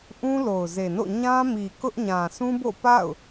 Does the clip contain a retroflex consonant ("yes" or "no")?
no